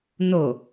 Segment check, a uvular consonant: absent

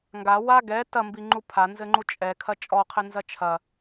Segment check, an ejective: present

